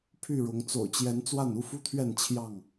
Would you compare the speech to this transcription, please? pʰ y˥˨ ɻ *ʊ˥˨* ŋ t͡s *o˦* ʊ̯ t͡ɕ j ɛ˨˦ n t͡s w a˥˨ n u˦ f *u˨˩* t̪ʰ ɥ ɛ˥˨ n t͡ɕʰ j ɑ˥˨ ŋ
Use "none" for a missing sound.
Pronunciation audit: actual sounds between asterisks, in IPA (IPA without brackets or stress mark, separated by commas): ʊ˨˦, o̰˨˩, u˦